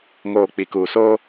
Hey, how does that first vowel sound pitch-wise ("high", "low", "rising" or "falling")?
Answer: low